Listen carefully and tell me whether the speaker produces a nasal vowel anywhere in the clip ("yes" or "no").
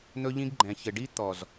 yes